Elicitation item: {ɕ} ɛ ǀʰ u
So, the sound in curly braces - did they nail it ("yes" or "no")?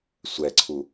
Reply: no